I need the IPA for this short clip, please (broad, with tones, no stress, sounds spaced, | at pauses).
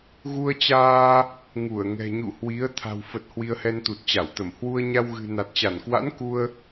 ɣ u˧ ə̯ t͡ɕ aː˧ | ŋ u˧˩ ə̯ ŋ ɛ̤˨˩ ɲ ṵ˧˨ h w i˨˦ ə̯ t̪ʰ a̤˨˩ w f ə˨˩ t̚ h w i˧ ə̯ h ɛ˧ n t̪ u˨˩ t̚ t͡ɕ a˧˩ w t̪ ə˧˩ m h w u˧ ə̯ ɲ a˧ w ɣ ɨ̤˨˩ n a˨˩ t̚ t͡ɕ a˧˩ n k w a̰˧˥ n k u˧ ə̯